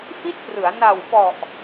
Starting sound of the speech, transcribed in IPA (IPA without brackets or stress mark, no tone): f